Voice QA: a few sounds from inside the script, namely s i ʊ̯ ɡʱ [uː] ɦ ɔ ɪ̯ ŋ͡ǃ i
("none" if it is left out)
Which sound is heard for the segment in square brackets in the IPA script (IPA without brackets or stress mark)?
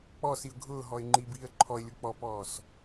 ʊː